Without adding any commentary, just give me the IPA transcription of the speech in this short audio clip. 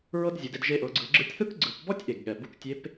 ɹ ɤ˥ d zʲ ɯ˩˧ d e˧ d ʒ e˧ ʔ ɤ˩˧ ɡ͡ǀ ɯ˩˧ ɡ͡ǁ ɯ˧ tʲ θ ɯ˥ k ɡ͡ǀ ɯ˩˧ p b ɔ˥ tʲ ʔ e˩ ɡ ɠ ɛ˩ b u˧ k tʲ e˧˥ p

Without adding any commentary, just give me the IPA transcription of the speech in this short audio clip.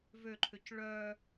v ø ǃʰ ø c ɭ œ

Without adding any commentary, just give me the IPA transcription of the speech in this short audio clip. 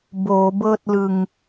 b oː˩˦ b ɤː˥˩ t̚ l ɯ˧ ŋ

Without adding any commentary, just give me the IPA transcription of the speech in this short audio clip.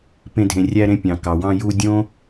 p ẽ˧ dʱ ẽ˨ rʲ æ˧ ɾ ẽ˧ pʲ ɑ̃˨ k ɑ˨ w ɑ̃˧ j u˧ dʲ õ˦

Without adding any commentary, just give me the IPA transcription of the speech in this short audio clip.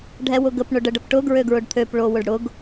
ɖʱ ɛ w ʊ ɡ ə p ɳ ʊ ɖ ə ɖ ə p ʈ ʊ ɡ ɹ ø ɡ ɹ ʊ ɖ t̪ʰ ø p ɭ o w ʊ ɖ ɽ ʊ ɡ

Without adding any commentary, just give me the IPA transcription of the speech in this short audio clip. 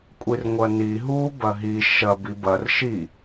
kʷʼ i r ŋʷ ɐ n i ɦ u b ɐ ɦ i ʃ ɐ b i b ɐ r ʃ i

